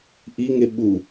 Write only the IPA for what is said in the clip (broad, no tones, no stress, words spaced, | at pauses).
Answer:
ʔiŋe ɓu